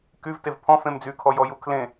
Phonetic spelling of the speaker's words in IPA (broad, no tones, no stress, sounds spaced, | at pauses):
k y v t e v pʰ ɔ̃ f ẽ m d͡z y kʰ ɔ j ɔ j u kʰ l ẽ